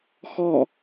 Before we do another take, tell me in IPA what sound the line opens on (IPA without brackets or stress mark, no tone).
x